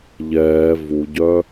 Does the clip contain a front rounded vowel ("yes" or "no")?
yes